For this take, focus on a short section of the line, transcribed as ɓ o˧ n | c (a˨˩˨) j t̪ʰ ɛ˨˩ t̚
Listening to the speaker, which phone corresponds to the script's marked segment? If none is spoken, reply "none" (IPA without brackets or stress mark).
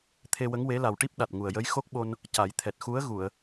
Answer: a˨˩˦